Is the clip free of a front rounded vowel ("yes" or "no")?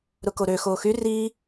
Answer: no